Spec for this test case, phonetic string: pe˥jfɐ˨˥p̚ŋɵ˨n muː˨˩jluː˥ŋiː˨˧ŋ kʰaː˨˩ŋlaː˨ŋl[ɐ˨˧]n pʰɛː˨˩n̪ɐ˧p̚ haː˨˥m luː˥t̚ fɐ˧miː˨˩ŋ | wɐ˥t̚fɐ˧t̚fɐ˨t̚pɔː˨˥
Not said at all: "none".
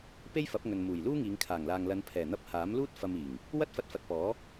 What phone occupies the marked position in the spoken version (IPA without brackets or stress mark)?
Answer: ɐ˨˧